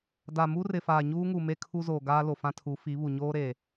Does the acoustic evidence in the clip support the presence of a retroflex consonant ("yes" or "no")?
no